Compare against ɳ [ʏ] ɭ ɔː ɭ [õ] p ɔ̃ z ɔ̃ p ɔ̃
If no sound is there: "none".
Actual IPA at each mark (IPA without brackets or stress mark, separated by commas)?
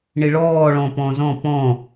ɪ, ɔ̃